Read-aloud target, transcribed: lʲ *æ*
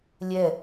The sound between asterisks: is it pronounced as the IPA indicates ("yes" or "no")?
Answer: no